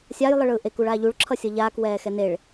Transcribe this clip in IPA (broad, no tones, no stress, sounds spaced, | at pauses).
sʲ a j lˠ ɯ ɭ ɯː ʔ e k u ɭ aː ʎ u ɭ ǁʰ ʌ sʲ ʌ ʎ aː k w ɛː x ɛ n e ɭ